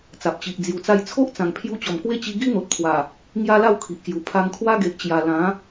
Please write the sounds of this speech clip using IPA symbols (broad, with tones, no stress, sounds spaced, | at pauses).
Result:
t͡s a˨ p̚ t͡ɕ i˨ ʔ d͡z j u˨˩ t͡s a˧ j t͡sʰ o˦ ʔ t͡s ã˨˩ ŋ pʰ j u˧ t͡ɕ ɔ˨˩ m k w e˦ t͡ɕ i˧ ɡ i˦ n̪ o˨ t̚ pʰ w a˨˩ | ŋ j a˦ l a˥˧ w kʰ i˨ ʔ k j u˨˩ pʰ a˧ ŋ kʰ w a˦ ɡ e˨ ʔ t͡ɕ j a˨˩ l ã˨˦